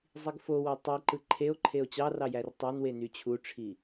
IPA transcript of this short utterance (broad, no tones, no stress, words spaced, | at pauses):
zˤiɡfowo tˤiǃɯ ǃʰeo̯ ǃʰeo̯t͡ɕɑrɑ jærtˤɑnwe nyt͡ɕʰuʈ͡ʂʰi